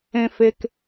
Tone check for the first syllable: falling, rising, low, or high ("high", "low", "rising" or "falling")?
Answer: low